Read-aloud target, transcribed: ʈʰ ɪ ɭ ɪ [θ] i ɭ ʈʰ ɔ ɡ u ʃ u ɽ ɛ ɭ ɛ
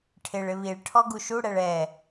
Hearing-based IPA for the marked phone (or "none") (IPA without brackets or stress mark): β